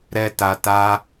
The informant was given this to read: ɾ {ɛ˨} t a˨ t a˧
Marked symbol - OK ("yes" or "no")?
yes